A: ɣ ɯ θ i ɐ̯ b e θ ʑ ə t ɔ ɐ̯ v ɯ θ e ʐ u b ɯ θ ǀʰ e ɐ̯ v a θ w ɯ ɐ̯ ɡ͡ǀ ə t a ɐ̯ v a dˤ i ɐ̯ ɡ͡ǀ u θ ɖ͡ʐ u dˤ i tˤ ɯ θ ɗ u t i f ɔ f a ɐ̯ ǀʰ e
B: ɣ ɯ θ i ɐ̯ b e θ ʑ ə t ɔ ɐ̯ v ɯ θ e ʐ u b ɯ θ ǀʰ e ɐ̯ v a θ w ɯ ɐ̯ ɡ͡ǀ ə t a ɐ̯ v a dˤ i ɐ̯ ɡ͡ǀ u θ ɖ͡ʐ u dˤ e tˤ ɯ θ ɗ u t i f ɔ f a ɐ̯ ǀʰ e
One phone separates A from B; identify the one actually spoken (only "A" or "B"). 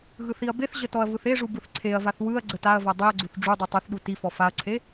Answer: A